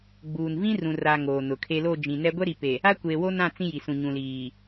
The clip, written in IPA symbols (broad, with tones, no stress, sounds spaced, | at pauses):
ɡ͡b uː˨ n v ĩ˦ r ũ˨ r a˨ ŋ oː˨ n ʊ˨ kʰ e˦ l o˦˨ d͡ʒ ĩ˨ n ɛ˦ ɡʷ ɛ˦ ɾ i˨ p e˨ | a˦ kʷ eː˨ w o˦ n ã˦˨ t͡s ĩ˦ j i˨ s ũ˨ ɲ ũ˨ l iː˨